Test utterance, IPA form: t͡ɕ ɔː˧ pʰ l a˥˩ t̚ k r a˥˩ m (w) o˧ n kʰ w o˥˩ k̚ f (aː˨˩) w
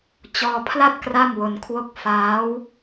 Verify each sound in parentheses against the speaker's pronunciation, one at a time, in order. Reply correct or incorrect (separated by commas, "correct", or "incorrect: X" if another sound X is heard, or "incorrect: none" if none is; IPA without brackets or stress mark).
correct, incorrect: aː˦˥